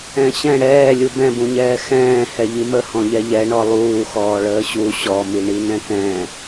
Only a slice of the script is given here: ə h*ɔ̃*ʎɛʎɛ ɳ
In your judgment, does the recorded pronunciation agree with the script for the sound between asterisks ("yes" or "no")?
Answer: yes